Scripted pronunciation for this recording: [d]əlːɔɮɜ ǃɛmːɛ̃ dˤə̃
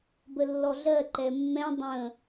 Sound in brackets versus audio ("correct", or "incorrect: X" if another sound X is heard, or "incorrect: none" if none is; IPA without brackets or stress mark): incorrect: b